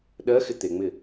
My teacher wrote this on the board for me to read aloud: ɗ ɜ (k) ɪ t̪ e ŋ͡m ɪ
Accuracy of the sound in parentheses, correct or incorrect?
incorrect